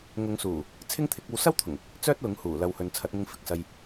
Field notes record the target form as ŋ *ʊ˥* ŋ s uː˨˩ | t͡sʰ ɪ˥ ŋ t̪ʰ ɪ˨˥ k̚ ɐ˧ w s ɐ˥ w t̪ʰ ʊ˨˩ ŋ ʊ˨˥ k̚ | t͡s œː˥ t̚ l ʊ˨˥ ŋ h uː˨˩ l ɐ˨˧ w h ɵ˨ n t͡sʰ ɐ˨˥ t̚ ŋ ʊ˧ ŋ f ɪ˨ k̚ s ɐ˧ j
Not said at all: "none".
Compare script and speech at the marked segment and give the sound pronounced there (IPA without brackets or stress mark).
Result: ʊ˨˧